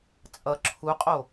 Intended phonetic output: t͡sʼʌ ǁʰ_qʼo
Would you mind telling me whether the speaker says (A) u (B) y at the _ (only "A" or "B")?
A